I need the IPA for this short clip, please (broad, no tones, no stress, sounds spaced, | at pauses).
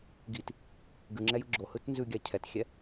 ɡ i t | ɡ ʉ ŋ͡ǁ ɛ j ɯ ɡ͡ǁ o h ɯ t n z ʉ ɡʲ a cʰ ɛ t xʲ ɛ